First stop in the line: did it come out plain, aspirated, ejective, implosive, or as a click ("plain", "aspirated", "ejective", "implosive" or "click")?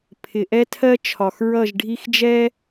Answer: aspirated